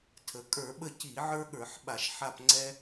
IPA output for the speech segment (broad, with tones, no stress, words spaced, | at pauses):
tʰə˩˧kʼə˞˧˩˧ ɓə˦˨ci˧˩˧ʕə˞˦ɠə˞˧˩˧ħ ɓa˧˩˧ʃħa˦˨pŋ͡ǀɛ˦